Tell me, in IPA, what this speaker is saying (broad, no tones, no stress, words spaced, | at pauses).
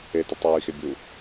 etʊ tˤijixe bʲu